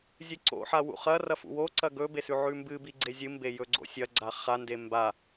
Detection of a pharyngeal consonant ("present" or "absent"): present